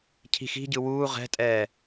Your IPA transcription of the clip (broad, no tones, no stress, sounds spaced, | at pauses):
cʰ i̤ x i̤ ɟ ɯ w uː ʁ ɛ̤ tʼ ɛː